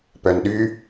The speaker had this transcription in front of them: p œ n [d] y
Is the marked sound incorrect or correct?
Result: incorrect